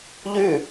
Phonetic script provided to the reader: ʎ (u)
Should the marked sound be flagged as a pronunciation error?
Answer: yes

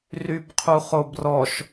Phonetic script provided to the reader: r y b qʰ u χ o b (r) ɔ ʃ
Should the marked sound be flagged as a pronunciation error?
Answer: no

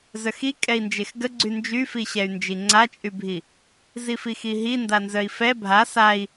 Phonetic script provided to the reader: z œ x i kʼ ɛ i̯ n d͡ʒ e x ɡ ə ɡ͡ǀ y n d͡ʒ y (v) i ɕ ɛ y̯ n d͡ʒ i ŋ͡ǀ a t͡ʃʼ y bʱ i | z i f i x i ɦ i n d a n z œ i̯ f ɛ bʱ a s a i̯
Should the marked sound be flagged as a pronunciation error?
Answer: yes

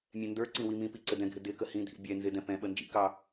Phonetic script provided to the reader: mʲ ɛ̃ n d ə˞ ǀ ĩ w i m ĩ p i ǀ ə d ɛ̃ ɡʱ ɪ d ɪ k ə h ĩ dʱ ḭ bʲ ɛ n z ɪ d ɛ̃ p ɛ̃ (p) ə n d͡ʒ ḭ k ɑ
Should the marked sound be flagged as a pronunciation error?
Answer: yes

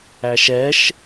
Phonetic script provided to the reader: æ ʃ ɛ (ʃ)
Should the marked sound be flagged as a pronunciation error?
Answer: no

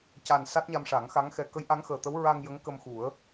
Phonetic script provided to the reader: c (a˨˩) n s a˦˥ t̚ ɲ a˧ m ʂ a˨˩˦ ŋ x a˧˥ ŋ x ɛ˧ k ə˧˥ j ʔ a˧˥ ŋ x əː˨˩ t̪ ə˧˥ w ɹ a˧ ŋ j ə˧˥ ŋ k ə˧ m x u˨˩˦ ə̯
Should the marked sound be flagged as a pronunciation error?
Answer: no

